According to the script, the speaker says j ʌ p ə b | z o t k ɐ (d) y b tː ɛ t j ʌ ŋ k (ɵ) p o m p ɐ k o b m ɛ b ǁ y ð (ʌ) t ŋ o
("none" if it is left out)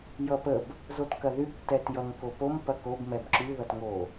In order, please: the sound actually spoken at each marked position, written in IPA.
ð, o, ʌ

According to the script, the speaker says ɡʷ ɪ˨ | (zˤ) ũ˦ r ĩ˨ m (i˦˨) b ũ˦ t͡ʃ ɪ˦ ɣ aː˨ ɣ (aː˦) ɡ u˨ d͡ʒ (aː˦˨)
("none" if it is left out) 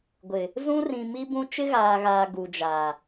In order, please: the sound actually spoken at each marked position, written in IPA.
z, i˦, aː˨, aː˨

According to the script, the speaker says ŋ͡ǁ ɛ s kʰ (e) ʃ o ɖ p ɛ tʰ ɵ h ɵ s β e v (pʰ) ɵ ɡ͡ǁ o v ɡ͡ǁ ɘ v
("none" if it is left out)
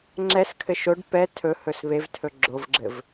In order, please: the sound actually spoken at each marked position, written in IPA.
ɘ, tʰ

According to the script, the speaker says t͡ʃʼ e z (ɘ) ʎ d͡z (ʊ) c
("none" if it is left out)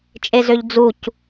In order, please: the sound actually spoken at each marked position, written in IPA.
ø, u

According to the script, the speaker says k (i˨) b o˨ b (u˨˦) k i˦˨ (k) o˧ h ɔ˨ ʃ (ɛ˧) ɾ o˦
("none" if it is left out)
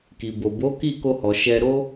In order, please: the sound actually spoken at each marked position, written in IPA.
i˨, o˨˦, k, ɛ˧

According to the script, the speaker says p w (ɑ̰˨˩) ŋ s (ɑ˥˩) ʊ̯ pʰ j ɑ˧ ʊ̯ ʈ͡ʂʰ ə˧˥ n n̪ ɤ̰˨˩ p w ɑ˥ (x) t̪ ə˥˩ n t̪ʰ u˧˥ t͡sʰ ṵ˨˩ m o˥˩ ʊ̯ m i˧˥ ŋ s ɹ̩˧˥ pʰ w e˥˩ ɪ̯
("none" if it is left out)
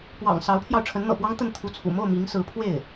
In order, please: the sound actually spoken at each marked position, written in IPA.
ɑ̰˨˩, ɑ˧˥, ŋ

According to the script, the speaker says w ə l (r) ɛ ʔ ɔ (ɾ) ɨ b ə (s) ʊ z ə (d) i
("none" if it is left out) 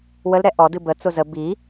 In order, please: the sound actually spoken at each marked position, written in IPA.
ɾ, d, t͡s, b

